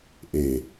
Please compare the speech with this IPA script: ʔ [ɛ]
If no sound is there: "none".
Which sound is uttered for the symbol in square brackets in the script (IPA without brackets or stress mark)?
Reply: e